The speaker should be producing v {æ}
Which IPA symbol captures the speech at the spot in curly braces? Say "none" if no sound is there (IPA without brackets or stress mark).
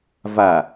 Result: a